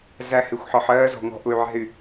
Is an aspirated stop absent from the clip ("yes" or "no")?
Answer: yes